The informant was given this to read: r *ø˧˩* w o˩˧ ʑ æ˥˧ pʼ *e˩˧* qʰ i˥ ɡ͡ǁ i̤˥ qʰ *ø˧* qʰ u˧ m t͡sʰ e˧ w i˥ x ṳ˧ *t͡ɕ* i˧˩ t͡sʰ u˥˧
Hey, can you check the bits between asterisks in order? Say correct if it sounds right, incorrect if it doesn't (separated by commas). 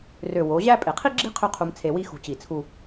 correct, correct, incorrect, correct